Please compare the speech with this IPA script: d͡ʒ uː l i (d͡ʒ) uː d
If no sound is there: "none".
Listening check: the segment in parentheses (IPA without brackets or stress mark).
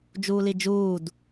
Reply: d͡ʒ